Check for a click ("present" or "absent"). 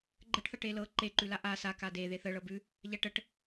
present